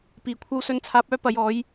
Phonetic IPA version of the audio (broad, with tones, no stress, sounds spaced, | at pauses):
p iː˨ kʷʰ ɐ˥ w s ɵ˧ n t͡sʰ aː˧ p̚ œː˥ p ɐ˨˥ j ɔː˨˥ j